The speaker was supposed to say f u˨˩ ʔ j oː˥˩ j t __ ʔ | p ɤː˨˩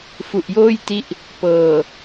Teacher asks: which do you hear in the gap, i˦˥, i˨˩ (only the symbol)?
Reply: i˦˥